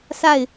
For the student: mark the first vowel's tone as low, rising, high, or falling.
falling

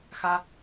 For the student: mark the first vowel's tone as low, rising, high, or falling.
high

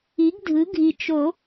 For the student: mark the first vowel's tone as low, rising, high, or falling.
rising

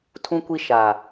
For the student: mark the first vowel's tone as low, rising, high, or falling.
high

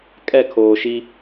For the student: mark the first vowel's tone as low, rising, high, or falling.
falling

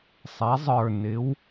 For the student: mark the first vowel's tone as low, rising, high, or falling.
rising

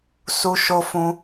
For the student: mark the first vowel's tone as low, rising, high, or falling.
high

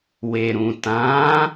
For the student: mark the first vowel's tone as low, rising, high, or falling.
low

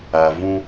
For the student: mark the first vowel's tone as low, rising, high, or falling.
low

